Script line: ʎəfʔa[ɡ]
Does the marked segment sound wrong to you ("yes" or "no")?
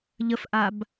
yes